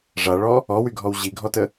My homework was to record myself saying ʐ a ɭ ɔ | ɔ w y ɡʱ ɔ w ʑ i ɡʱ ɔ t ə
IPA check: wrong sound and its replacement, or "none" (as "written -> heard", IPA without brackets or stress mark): none